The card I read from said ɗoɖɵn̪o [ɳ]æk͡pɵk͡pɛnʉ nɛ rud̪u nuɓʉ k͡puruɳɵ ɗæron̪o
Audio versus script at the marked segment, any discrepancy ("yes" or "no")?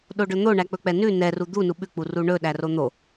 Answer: no